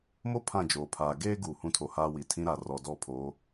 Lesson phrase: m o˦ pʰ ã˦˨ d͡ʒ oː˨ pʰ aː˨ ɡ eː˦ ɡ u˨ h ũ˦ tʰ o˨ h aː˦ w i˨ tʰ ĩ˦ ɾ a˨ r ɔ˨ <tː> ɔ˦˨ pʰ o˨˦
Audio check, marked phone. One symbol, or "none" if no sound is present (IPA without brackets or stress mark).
d